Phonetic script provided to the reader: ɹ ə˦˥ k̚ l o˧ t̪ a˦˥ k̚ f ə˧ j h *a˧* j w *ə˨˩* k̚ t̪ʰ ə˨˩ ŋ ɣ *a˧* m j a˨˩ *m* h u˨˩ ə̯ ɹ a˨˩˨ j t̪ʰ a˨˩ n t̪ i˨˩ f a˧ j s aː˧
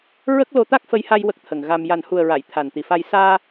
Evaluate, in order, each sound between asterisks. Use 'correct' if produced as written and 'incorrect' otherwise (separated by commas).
correct, incorrect, correct, incorrect